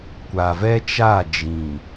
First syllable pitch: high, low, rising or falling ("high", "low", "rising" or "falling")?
low